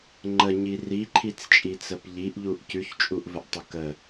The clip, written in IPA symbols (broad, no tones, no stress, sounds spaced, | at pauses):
ŋ͡ǃ ə ɲ i r i ǃʰ i t͡s t͡ʃʼ i t͡s ə p ʎ i ʔ ʎ u ʔ c ʉ ç t͡ʃʼ u ʔ v ə ʔ tˤ ə k ə